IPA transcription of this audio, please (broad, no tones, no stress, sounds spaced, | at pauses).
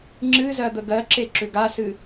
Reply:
ŋ͡ǁ ɨ z ɜ d̪ ə ɡ ɜ ǁ e ǁ ʏ ɡ a s ɨ